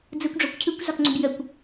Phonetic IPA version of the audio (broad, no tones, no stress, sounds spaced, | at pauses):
d͡z ɯ kʷ ɖ͡ʐ ɔ kʷ cʰ ɯ kʷ z ɒ k ŋ͡ǀ ʏ b j ə kʷ